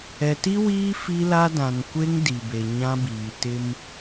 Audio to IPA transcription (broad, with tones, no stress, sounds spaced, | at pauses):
ɛ˨ t i˦ w iː˦ f i˦ l a˦ d ã˨ n kʷ e˦ ŋ d i˨ b e˨ ɲ ã˦ b iː˨ t ɪ˦ m